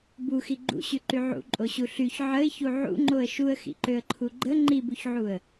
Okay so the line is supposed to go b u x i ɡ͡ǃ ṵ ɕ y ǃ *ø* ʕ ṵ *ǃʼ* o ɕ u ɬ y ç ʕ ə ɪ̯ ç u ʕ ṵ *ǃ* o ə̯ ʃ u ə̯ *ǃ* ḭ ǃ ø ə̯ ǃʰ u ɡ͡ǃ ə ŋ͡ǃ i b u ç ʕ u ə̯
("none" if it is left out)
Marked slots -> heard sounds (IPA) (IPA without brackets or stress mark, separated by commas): y, ǃʼ, ŋ͡ǃ, x